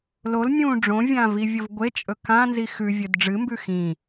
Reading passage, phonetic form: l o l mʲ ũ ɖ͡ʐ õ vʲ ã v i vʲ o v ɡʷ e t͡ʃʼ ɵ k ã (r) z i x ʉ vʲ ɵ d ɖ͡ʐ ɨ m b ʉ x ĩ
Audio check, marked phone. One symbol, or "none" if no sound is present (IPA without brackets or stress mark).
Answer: n